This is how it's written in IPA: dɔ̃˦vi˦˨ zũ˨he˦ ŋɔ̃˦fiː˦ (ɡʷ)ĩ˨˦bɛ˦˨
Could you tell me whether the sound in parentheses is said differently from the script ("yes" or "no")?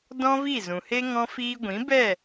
no